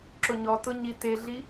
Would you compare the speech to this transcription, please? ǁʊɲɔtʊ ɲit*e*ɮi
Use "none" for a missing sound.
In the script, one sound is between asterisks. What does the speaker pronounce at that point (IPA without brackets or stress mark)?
e